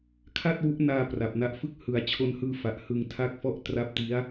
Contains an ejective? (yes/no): no